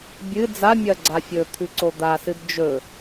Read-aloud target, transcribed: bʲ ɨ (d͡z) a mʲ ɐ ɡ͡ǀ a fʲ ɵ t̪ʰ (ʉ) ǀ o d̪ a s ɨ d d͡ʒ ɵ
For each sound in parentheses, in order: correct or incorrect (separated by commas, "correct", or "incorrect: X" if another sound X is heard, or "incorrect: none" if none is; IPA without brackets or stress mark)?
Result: correct, correct